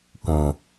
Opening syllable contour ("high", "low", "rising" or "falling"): low